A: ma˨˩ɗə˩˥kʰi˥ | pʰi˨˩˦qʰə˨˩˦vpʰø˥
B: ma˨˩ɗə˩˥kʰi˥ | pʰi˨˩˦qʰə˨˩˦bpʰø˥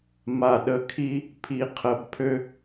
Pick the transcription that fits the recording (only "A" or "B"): B